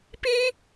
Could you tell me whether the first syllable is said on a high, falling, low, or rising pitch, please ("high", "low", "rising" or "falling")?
high